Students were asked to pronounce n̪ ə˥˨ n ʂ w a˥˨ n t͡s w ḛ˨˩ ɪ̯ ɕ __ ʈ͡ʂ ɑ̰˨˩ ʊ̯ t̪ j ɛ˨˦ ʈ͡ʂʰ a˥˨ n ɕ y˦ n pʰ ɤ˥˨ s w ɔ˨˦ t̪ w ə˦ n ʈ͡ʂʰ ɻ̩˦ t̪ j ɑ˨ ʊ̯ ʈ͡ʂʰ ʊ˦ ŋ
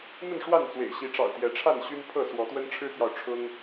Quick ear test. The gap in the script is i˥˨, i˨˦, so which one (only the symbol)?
i˨˦